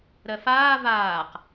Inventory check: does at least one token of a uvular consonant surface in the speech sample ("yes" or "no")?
yes